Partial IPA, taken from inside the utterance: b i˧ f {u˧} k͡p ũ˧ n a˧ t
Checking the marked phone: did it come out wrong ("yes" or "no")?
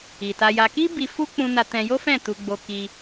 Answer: yes